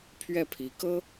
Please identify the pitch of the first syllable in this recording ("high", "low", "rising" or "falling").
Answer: falling